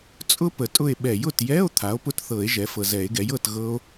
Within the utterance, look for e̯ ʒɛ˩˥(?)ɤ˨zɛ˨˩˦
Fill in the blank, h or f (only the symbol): f